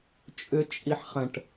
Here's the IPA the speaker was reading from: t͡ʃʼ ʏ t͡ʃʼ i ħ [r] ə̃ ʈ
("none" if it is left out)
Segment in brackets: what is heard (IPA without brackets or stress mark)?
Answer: χ